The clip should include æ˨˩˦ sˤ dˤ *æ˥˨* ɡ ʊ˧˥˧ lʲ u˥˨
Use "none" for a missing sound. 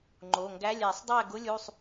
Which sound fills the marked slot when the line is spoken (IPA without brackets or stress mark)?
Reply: æ˥˨